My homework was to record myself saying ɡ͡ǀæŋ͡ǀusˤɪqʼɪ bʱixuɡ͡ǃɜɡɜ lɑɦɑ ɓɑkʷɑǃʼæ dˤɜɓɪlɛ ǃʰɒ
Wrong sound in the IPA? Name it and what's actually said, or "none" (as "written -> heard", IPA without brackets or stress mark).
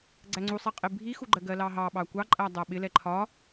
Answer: none